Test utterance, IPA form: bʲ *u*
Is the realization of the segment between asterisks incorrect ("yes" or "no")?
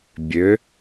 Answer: yes